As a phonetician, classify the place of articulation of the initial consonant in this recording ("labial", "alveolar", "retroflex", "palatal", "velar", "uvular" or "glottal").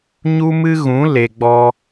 palatal